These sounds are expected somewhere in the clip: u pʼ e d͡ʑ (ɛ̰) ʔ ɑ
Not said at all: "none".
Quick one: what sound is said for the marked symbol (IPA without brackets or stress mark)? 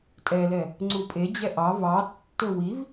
ɛ